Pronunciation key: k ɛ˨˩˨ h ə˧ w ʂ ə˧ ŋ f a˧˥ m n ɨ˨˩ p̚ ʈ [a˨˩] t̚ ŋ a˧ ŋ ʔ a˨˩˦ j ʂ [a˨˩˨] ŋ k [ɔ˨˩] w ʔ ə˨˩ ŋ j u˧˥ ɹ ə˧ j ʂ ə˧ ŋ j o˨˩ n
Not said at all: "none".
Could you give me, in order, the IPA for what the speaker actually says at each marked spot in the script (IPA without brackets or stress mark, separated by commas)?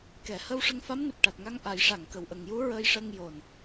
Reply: a˨˩, a˨˩˨, ə˨˩